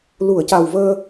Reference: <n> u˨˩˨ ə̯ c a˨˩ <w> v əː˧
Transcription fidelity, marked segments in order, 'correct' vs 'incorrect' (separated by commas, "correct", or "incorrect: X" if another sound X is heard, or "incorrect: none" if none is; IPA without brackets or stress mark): incorrect: l, correct